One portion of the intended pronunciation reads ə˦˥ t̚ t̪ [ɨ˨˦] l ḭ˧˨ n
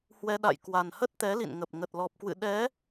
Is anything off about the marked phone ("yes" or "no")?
yes